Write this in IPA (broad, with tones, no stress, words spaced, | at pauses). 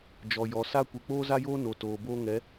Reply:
d͡ʒɔ˨jɔ˨ sa˦ kʷe˨k͡poː˦za˦joː˦ no˨toː˨ boː˦ŋɛ˨˦